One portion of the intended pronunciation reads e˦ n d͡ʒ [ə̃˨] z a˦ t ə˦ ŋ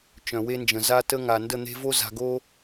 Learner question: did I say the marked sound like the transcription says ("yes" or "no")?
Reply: yes